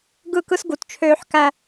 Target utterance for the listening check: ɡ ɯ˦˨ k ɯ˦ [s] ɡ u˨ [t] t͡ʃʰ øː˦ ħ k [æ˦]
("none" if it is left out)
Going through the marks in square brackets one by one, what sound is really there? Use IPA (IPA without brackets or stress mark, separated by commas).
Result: s, t, æ˦